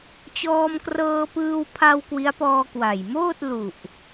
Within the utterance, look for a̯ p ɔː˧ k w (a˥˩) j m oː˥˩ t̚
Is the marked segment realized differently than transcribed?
yes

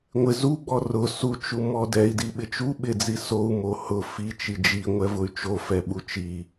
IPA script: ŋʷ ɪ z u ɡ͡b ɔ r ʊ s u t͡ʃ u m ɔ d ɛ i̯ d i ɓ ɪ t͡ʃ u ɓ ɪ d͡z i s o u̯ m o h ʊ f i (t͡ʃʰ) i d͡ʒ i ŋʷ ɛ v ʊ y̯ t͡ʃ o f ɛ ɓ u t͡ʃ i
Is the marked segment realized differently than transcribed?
yes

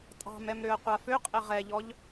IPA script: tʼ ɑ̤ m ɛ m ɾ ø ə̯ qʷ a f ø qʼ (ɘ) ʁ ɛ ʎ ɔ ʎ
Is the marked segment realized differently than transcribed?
no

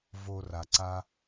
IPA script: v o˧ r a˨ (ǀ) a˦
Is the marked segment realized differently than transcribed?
no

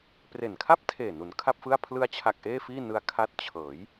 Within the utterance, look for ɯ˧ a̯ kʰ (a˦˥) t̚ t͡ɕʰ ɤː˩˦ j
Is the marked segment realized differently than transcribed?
no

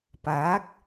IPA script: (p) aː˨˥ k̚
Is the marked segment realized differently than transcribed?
no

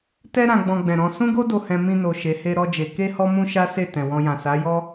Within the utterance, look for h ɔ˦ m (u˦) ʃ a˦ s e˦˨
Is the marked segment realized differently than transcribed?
yes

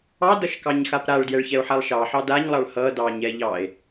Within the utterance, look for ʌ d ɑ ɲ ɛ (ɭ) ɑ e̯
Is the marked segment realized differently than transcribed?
yes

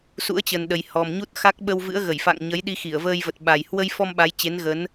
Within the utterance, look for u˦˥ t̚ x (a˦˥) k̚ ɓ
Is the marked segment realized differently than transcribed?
no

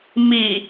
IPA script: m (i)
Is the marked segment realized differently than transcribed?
no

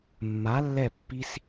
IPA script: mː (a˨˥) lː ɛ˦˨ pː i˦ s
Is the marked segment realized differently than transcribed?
no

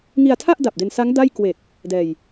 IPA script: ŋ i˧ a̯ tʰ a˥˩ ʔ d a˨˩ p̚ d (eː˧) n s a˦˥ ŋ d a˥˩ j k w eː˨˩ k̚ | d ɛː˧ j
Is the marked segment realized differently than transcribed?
yes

